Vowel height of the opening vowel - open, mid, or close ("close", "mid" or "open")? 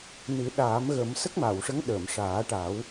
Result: close